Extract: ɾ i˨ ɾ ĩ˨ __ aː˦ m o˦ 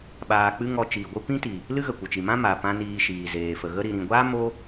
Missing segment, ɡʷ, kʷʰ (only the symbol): ɡʷ